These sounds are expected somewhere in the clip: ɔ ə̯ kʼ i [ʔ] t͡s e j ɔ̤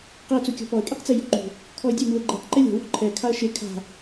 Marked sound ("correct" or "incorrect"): incorrect